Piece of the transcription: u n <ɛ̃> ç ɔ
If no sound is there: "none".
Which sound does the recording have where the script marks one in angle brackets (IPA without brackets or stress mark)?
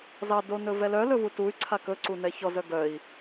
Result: ɛ